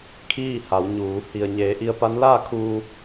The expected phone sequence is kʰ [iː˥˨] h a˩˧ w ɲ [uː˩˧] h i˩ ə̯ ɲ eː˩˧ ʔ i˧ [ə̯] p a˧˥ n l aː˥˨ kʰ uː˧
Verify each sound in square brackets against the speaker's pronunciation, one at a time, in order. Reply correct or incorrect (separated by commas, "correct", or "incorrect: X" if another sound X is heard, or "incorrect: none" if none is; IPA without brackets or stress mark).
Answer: correct, correct, correct